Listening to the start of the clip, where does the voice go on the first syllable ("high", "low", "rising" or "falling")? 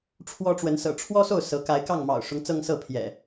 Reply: high